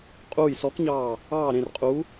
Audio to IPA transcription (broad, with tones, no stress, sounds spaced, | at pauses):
qʼ uː˦˨ j s ɔ˧˥ k ɲ ɑː˦˨ | ɑː˦˨ ɾ ẽ˦˨ r qʼ u˧˥